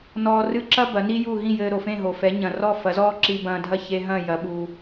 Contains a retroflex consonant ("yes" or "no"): no